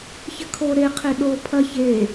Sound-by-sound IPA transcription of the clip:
ç ɘ kʰ o ɾ e qʰ e ɗ o pʰ ɐ ç e

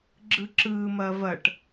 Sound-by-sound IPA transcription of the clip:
ɡ͡ǁ ɯ ǁ ɯː m ɐː v ɐ ʈ

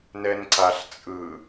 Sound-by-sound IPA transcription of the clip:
n ɛ n ǀ a ɬ t͡sʼ ɯ

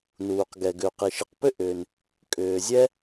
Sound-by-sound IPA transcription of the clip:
n uː˩ q ɡ ɛ˩ ɡ ʏ˩ u̯ q i˩ ʃ i˩ q p ʏ˥ ʔ ʏː˩ n | kʼ ʏː˩ zʲ ɛ˥

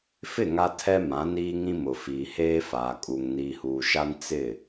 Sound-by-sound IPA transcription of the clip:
f ɪ˦˨ ŋ a˦ tʰ ɛ˦ m ã˨˦ n iː˦ ŋ ĩ˦ m ʊ˨ f iː˨ h eː˦ f aː˨ kʼ u˨ ŋ n iː˨ h uː˨ ʃ a˦ n t͡s ɪ˦˨

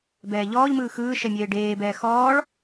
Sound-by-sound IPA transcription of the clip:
b ɛː ʎ ɔː ʎ m ɯː x ɯː ʃ ɛ mʲ eː ɖ eː b ɛː x ɔː ɭ

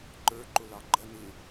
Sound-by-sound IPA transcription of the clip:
ǃ ə˞ ǃ ʊ l ɑ ɡ͡ǃ ʌ n ɪ

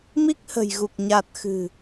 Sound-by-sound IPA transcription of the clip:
m i˦˥ k̚ h ə̤˨˩ j ɣ u˨˩ k̚ ɲ a˨˩ t̚ x ɨ̤˨˩

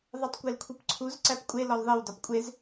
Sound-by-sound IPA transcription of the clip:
ðˤ e tˤ kʷ e l kʷʰ i p ǀʰ u z ǀ æ p kʷʼ e l ɒ l ðˤ i w d ɒ p kʷʼ e z

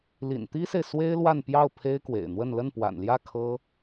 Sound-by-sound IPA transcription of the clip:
l ḭ˨˩ n t̪ i˥ s e˨ ɪ̯ s w e˥ ɪ̯ l w a˥˧ n p j ɑ˥˩ ʊ̯ pʰ e˥ ɪ̯ k w ḛ˨˩ ɪ̯ n̪ w ə˥˧ n l ə˥˩ n p w a̰˨˩ n l j ä˥˩ kʰ ɤ˥

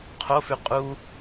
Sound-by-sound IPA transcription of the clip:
qʰ o f ʉ qʼ u

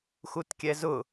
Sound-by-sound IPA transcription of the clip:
x u t kʲ ɛ z ʊ

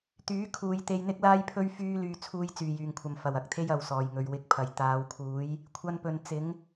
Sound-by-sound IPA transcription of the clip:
t̪ yː˨˥ kʰ uː˧ j t̪ e˧ j n̪ ɪ˥ k̚ l aː˥ j pʰ ɵ˥ ɥ f yː˥ l yː˨ t͡sʰ uː˧ j t͡s yː˨˩ j yː˨˩ ŋ kʷʰ ɐ˨˩ m f ɐ˨˩ w ɐ˨ k̚ t̪ʰ e˥ j ɐ˨˧ w s ɔː˨˩ j ŋ ɵ˨ ɥ w ɪ˨˥ k̚ pʰ ɐ˨˩ j t̪ aː˨˧ w kʰ uː˨˥ j | kʷʰ ɐ˥ n p ɵ˧ n t͡s ɪ˨˥ ŋ

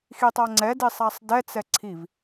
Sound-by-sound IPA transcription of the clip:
x i tˤ a ŋ͡ǀ ɛ d i sˤ a sˤ d ɛ t͡s ɛ ǀʰ i v

